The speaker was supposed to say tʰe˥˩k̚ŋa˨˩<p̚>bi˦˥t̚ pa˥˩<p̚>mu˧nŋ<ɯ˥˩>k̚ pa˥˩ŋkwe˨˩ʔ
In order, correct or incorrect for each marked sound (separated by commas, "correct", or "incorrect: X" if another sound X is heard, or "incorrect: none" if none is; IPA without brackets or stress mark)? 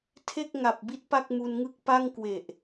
correct, incorrect: k̚, correct